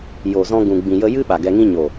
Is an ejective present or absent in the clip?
absent